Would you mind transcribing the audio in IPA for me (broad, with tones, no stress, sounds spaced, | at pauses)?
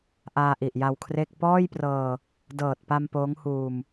ʔ aː˧ ʔ i˨˩ ʔ j a˧ w kʰ r e˥˩ k̚ p ɔː˥˩ j p r ɤː˧ | d ɤː˨˩ t̚ p a˧ m p oː˦˥ ŋ h uː˧ m